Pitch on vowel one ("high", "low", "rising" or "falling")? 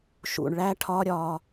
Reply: low